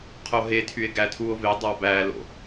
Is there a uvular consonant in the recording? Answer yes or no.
yes